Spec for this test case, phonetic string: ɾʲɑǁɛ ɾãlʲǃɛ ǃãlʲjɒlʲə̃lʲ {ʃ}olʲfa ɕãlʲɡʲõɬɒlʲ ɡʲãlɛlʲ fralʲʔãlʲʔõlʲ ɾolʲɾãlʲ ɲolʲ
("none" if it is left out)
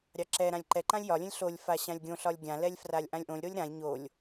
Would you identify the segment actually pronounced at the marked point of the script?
ɬ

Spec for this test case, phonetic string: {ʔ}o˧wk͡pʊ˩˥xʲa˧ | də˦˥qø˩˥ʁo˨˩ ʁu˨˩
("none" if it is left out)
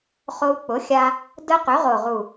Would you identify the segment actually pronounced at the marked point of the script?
χ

